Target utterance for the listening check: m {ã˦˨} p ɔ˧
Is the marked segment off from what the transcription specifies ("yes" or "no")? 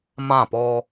no